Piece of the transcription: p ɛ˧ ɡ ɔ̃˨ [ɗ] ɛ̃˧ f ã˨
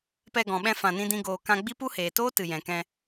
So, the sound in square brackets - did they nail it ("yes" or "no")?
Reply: no